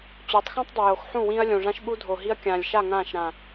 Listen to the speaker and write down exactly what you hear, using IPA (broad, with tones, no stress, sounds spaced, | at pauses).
t͡ɕ o˨˦ tˤ x ũ˦ tˤ dˤ ɪ˨ j o˨ x ħ ũ˦˨ w ĩ˦ ɐ̯ lʲ õ˨ ʐ ã˦ ʃ ɓ u˦ dʱ o˨ ɦ i˦ ɐ̯ kʲ ãː˨ lʲ ʃ a˦˨ ŋ ãː˦˨ ʃ ɾ ã˨